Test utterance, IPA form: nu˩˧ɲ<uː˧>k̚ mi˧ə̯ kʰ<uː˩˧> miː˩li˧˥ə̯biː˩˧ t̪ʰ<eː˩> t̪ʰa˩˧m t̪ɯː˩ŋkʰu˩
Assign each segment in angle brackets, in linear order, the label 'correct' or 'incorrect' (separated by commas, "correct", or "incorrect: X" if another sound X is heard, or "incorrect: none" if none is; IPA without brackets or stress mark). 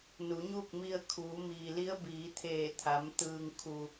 incorrect: uː˥˨, correct, incorrect: eː˧˩